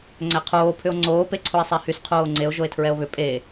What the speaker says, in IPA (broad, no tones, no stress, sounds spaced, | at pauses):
ŋ͡ǀ æ qʰ oː pʰ ʏ o̯ ŋ͡ǀ oː p e ǀʰ o e̯ sˤ æ h y s qʰ oː ŋ͡ǀ e o̯ ʒ o e̯ tʰ ɹ ɛ o̯ β ʏ pʼ e